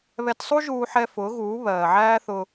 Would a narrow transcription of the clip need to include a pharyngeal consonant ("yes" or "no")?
yes